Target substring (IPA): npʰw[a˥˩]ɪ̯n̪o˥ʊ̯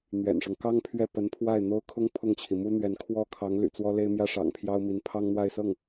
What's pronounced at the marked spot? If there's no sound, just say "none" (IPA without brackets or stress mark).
a˥˩